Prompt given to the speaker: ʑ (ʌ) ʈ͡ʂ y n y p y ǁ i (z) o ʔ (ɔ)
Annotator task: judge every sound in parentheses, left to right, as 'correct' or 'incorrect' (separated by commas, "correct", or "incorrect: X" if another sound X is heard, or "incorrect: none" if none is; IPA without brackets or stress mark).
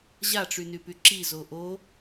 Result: incorrect: a, correct, incorrect: o